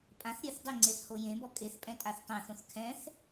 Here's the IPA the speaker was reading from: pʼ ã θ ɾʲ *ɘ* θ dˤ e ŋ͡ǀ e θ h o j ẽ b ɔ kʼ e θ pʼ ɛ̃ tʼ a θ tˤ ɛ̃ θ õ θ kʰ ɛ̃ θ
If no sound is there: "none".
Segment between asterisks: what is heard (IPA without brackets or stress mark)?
ɘ